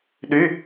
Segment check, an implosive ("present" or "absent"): present